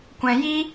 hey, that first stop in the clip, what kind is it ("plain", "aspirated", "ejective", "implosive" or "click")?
plain